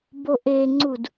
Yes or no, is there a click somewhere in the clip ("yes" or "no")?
yes